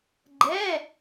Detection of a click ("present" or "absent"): present